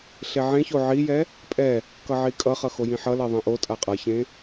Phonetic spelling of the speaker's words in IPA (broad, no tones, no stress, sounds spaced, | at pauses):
ɬ e ʕ ẽ ç o ʕ i j ɛ | pʼ ɛ | k ʌ ʕ i kʼ ʌ χ ʌ x o j ĩ ħ ʌ l e ðˤ ĩ ʔ o tʼ a qʼ ʌ ç ẽ